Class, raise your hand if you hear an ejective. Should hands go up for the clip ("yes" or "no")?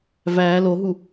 no